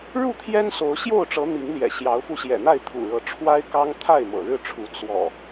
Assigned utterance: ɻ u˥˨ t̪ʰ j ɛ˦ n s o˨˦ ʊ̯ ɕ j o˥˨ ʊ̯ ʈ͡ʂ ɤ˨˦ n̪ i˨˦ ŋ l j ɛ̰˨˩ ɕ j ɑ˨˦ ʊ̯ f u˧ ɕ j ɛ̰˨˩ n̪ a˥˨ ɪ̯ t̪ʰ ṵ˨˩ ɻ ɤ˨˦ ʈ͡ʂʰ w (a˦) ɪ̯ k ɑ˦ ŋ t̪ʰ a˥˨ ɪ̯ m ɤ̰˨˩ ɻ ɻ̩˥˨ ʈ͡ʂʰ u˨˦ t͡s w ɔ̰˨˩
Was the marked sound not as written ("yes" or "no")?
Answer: no